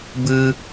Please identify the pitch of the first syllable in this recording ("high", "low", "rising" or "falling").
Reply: high